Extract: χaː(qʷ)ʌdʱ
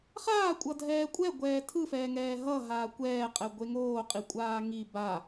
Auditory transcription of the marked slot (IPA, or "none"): kʷʼ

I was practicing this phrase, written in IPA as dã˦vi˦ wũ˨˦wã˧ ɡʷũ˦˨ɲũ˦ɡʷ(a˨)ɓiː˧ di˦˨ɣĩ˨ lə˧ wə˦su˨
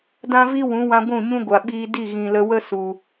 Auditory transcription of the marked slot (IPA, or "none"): a˨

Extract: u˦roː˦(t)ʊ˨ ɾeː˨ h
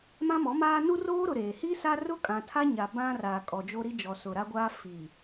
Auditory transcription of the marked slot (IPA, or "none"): ɾ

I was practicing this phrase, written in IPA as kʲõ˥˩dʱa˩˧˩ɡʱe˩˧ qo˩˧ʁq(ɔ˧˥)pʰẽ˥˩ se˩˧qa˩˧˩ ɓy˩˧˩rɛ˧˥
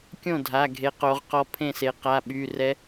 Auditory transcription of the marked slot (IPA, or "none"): ɔ˧˥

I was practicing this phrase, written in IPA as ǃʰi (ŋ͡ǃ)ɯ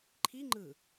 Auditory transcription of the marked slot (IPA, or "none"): ŋ͡ǃ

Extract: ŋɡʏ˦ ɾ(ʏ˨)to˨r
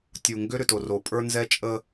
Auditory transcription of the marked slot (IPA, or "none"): ʏ˨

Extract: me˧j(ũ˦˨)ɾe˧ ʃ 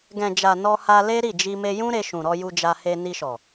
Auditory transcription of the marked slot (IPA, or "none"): ũ˦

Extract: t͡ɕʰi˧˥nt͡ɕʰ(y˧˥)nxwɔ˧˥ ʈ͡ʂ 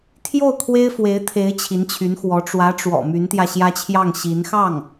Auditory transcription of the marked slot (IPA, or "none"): y˧˥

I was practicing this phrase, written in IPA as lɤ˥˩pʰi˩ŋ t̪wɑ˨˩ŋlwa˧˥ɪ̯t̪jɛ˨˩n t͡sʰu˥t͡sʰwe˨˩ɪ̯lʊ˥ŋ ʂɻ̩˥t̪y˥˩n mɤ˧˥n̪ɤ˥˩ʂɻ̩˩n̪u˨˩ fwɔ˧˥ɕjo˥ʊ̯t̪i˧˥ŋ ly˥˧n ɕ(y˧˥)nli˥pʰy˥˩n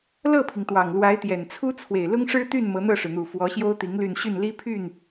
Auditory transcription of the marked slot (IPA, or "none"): y˥˩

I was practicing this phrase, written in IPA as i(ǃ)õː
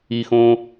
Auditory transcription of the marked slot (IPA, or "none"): x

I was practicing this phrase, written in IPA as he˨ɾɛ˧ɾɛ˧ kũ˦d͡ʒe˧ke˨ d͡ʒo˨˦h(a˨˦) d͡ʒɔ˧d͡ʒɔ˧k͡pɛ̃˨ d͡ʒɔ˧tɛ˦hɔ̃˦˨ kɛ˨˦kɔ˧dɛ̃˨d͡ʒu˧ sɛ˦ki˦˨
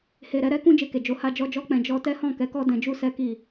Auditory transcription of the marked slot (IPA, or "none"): a˧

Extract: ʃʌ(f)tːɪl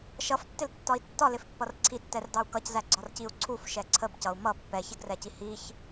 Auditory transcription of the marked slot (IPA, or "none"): f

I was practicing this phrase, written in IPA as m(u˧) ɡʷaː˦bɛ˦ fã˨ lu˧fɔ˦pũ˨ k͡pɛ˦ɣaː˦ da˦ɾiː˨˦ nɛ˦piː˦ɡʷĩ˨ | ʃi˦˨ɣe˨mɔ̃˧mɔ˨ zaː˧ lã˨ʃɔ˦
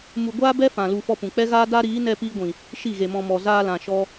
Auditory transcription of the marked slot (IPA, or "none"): u˧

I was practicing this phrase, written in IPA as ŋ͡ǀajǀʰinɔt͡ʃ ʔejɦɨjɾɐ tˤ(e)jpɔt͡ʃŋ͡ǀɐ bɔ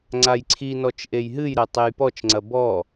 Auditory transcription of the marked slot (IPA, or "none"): e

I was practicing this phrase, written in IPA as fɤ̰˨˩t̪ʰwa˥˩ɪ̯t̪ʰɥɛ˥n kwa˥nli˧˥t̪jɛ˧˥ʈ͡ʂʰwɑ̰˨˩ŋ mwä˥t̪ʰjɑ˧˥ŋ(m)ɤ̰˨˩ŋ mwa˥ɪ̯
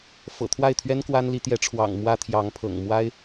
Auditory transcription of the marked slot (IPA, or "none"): pʰ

